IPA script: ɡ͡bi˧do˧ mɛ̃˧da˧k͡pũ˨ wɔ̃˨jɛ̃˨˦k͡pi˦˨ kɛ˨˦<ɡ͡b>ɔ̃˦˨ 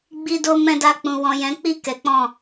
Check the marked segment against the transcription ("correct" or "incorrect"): incorrect